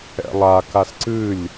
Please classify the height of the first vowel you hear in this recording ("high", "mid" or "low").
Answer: mid